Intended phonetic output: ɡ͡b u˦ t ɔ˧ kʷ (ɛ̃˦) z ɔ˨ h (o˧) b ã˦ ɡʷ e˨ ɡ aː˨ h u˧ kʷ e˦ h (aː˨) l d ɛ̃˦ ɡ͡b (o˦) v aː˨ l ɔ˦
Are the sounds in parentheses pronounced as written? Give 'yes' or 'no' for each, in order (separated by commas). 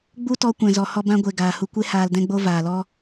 no, no, no, yes